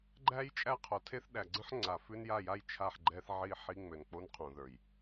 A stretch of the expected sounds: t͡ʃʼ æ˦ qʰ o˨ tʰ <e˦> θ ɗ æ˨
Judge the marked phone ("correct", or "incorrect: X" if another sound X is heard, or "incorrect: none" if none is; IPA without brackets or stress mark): correct